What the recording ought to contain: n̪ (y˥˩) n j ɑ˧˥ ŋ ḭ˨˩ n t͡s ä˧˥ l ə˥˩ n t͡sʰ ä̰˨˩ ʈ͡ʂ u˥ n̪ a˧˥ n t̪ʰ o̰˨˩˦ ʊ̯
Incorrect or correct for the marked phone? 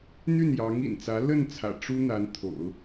correct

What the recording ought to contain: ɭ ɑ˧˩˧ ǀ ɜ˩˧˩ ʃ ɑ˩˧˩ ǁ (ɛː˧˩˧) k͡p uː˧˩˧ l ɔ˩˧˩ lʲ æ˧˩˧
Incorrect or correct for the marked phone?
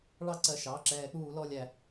correct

